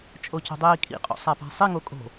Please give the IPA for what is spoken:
t͡ʃʼoco̤dˤiːkʼḭ qʼo̰sˤapa̤sˤi ŋokʼo̤

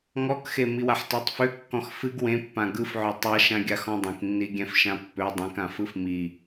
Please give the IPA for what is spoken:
ŋɔkxe miwaħtøtˤfø kːɔ̃xfɨɡ wẽpːã ɡɯfʕø tˤaʃãɡʲa xɔ̃dˤĩknːiɡʲɛ̃f ʃãpːø dˤẽk ãfɯfmi

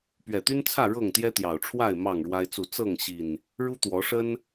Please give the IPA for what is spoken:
pɥɛ˨˩t̪y˦nt͡sʰä˥˨ ɻɤ˥˨ŋt̪jɛ˦t̪jɑ˨˩ʊ̯ʈ͡ʂʰwa˥˨ɪ̯ mɑ˥˨ŋɻwa˦ɪ̯t͡su˥˨ t͡sɤ˥˨ŋɕi˨˩n | ɻu˦t̪wɔ˨˦ʂə˦n

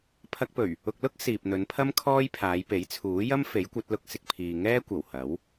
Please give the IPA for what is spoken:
pʰɐ˧k̚pɵ˨˩ɥ | ʊ˨k̚lʊ˥k̚ siː˨p̚ n̪ɵ˨˧npʰɐ˥m kʰɔː˥jpʰaː˨˧jpe˨˥j t͡sʰuː˨˥jɐ˥m fe˨˥jkʷɐ˨˥t̚ lʊ˧k̚ sɪ˨k̚ pʰiː˨ŋɛː˥ kʷɐ˨˩whɐ˨˥w

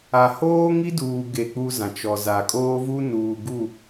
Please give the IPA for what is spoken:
a˨hoː˦ŋi˦duː˨ ɡe˦˨k͡pu˦zã˨ t͡ʃɔ˨za˨kʼoː˦ vu˦nuː˨ɡu˦˨

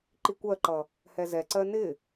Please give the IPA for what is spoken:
ǃikʷɜǃʌ | hɛzɛǀɜ nɪ

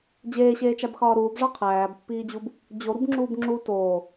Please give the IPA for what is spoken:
d͡ʑeːɕeːt͡ʃæbxɒː ɾuːbʐɒ qʰæːbpːiːd͡ʑub | d͡ʑoɾubŋ͡ǁuːb ŋ͡ǁu toː

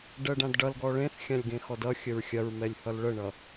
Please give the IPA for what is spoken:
ɖɜɖãdɖʌlɡɔ ɭẽθxʲãlʲ ɡẽxɔdʌxʲəɹ xʲɐɹmɛlʲ hʌlɭəɳʌ

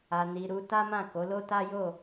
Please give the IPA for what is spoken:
a˧ni˧ɾu˦ ta˦mã˦˨ ko˨˦lo˦ta˦ jo˦˨

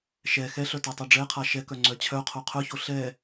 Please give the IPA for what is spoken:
ʃɛ xɛɬœ tɛtˤoɖ͡ʐɛqʰa ʃɛkœ ŋ͡ǀœt͡ɕʰœqʰo qʰœço ɬɛ

